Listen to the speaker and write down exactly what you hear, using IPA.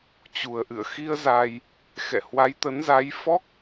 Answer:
t͡ɕ u˨˩ ə̯ ʔ ɨ̰˧˨ ə̯ x i˧ ə̯ z a˧ j | x ɛ̰˧˨ h w a˨˦ j t̪ ə˨˦ n z a˨˦ j f ɔ˦˥ k̚

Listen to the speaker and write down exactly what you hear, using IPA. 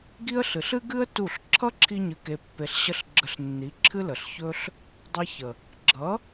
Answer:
ɡ i˦ ə̯ ɬ ɨ˨ ɬ ɨ˦ ɡ ɨ˦ ə̯ t u˦˨ ɬ ǁʰ ʌ˦ ǁʰ i˧ ɲ ɨ˨ k e˨ pː e˨ ɬ ɕ ə˧ ɬ ɡ͡ǁ ə˧ ɬ nː i˨˦ ǁʰ ɨ˦ l ə˨ ɬ ç ɵ˦ ɬ | dˤ e˧ ç ə˨ | ɡ͡ǁ ʌ˨˦

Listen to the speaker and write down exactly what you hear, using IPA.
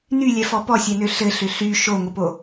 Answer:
n y lʲ ɛ f ɔ p ɔ sʲ ɛ n ø ɬ ɘ ɬ ʏ ɬ y ʃ o ŋʷ ə p o

